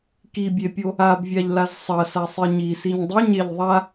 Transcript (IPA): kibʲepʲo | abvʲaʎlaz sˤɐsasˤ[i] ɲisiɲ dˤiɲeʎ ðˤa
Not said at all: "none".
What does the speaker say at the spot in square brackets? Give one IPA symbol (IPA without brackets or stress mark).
i